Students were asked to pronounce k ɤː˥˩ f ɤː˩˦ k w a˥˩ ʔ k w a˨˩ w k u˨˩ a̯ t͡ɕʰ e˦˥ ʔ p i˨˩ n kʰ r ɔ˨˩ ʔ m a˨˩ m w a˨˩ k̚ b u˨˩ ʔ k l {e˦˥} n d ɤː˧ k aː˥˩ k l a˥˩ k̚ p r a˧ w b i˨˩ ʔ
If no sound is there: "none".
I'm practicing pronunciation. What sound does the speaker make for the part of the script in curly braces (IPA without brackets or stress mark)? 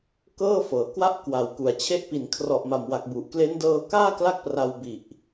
e˦˥